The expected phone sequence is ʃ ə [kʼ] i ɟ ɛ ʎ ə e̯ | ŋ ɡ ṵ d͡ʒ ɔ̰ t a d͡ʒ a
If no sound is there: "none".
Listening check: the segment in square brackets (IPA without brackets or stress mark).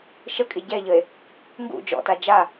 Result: kʼ